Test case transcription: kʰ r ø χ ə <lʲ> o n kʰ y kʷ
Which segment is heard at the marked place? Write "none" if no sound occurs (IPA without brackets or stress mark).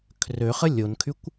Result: lʲ